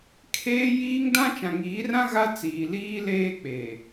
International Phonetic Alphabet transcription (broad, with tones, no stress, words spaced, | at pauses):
kʰeː˦jiː˦ŋ dã˦t͡ʃã˨ ŋiː˨˦rã˦ ɣa˦ t͡siː˨liː˦leː˦k͡peː˨